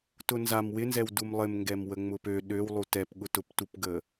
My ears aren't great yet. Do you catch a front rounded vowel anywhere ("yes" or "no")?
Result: yes